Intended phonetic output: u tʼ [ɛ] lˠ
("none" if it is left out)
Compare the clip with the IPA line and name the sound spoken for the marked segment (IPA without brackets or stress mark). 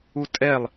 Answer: ɛ